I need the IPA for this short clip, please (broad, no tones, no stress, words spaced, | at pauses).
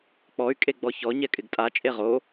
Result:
k͡pɔy̯ kʼeɡ͡bɔçɔ ɲɛkʼɪɡtʼa t͡ʃʼeʁo